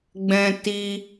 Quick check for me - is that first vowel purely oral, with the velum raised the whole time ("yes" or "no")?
no